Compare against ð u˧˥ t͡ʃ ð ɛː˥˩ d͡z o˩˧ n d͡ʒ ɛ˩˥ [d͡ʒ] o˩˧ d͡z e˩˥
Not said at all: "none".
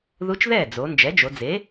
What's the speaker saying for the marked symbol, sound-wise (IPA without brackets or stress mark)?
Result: d͡ʒ